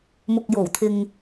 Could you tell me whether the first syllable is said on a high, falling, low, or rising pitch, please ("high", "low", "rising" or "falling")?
low